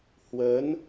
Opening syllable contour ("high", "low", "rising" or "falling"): rising